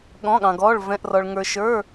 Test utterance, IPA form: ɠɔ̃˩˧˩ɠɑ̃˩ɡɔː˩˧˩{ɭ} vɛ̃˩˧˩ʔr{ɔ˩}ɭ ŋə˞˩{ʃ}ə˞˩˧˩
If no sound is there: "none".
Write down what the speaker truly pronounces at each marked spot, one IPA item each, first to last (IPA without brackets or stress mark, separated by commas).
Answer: ɭ, ɔ˩, ʃ